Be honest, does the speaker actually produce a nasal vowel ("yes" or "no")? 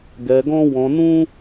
yes